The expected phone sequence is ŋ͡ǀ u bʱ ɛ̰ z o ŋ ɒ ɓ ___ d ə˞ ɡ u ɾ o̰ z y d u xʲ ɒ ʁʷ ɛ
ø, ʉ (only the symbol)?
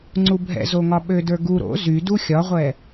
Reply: ø